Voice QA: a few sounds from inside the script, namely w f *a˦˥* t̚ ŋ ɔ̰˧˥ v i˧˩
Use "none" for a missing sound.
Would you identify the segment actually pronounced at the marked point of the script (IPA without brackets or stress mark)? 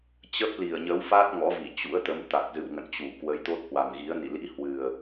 a˦˥